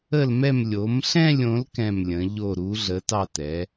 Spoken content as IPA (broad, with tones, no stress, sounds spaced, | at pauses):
ə˥˧ l m ɛ˥˧ m lʲ o˨˥ m ɬ ɛ̃˥˧ lʲ õ˨˥ l k ɛ̃˥˧ m lʲ ə̃˨˥ ʎ o˥˧ ɾ u˨˥ ɮ ə˨˥ t ɑ˥˧ t ɛ˨˥